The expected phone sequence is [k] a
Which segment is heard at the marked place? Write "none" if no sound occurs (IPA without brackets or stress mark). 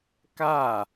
k